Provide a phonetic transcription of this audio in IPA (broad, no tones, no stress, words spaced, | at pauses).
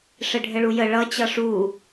ʂɘɖʱɘɭujə ɭʌ t͡ɕʌʂu